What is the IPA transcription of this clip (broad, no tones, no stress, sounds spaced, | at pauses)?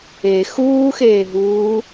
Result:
e x uː x eː ɦ uː